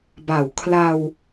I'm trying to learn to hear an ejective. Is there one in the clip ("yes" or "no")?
no